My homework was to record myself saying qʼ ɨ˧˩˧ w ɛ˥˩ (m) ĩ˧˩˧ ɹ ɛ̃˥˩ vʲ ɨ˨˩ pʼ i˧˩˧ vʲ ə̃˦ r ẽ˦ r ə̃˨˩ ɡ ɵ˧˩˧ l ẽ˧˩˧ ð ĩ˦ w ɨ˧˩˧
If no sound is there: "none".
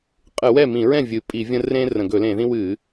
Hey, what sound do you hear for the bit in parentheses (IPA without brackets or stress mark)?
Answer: m